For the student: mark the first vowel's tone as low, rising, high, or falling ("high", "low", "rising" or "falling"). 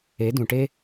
rising